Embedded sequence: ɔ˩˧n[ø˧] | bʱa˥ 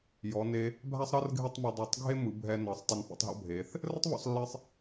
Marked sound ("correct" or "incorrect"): incorrect